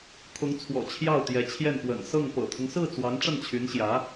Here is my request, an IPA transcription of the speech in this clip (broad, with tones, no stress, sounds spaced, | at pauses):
kʰ ʊ˧˥ ŋ t͡sʰ w ɔ̰˨˩ t͡ɕʰ j ɑ˥˩ ʊ̯ t̪ j ɛ˧˥ t͡ɕʰ j ɛ˥˩ n p w ə̰˨˩ n s ɤ˥˩ ŋ p ɤ̰˨˩ t̪ʰ ʊ˦ ŋ s ɹ̩˥˩ t͡s w ɑ˧˥ ŋ ʈ͡ʂ ə˥˩ n t͡ɕʰ y˧˥ n ɕ j ä˧˥